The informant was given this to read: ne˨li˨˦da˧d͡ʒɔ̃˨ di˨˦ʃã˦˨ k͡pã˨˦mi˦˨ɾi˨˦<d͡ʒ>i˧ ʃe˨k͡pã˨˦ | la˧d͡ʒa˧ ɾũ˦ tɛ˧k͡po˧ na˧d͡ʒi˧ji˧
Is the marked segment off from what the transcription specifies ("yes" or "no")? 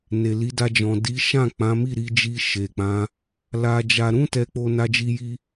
no